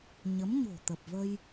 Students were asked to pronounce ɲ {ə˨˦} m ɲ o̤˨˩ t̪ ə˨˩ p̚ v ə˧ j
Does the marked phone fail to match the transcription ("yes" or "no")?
no